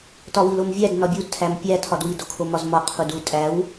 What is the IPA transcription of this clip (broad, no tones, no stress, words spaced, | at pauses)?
tɒwilomvʲæd nɒbʲudtʰæm pʲæ tʰɒdwido kʰomɒzmɒ qʰudu tʼæw